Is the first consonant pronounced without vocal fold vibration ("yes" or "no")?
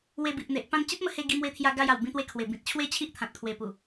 no